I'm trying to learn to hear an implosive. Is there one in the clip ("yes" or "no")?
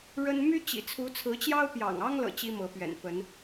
no